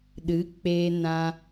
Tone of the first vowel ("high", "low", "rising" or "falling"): rising